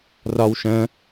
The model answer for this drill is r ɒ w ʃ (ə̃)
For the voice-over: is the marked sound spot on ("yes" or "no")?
yes